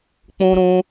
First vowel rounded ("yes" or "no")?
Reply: yes